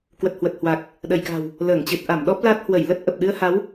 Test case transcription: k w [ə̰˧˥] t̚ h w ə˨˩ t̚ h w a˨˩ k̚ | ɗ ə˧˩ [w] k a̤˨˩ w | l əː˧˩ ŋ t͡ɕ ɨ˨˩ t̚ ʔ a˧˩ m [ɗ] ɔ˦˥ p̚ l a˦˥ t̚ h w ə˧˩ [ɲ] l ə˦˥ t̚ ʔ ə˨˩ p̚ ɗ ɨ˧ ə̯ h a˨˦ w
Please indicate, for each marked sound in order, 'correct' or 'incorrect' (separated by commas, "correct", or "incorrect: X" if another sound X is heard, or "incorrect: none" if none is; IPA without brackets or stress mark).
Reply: incorrect: ə˨˩, incorrect: j, correct, incorrect: j